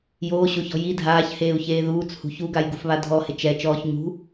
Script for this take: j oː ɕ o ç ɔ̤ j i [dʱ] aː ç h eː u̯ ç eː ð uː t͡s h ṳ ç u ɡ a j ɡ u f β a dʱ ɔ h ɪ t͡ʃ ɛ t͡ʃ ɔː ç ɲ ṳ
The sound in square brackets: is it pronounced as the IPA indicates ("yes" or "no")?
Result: yes